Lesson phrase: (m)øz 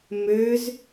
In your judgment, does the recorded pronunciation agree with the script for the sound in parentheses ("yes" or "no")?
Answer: yes